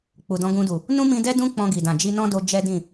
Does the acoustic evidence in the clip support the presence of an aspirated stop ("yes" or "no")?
no